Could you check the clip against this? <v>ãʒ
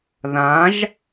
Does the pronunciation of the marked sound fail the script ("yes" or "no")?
yes